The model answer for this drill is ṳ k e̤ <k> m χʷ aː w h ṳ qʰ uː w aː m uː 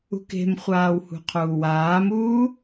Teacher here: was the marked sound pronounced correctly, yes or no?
no